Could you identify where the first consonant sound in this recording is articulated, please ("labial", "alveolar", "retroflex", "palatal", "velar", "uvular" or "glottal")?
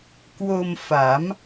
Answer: velar